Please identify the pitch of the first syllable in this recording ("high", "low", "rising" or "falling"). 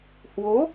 rising